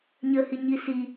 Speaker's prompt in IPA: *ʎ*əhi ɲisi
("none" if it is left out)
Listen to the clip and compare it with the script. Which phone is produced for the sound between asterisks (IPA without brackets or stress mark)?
ɲ